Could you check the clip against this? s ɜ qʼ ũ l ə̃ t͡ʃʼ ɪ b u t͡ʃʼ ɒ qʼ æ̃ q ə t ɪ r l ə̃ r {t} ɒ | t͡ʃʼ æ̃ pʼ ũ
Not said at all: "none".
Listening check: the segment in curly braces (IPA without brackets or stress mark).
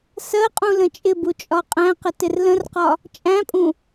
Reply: q